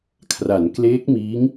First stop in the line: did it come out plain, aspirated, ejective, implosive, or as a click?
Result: aspirated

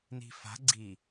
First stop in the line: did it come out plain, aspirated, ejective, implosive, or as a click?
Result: click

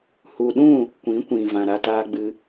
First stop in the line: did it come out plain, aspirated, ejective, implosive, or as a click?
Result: implosive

